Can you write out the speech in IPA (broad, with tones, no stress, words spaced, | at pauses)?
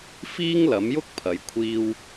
fiː˥ŋlɐ˨˥mjʊ˥k̚ pʰɐ˨˥jkʷʰiː˥w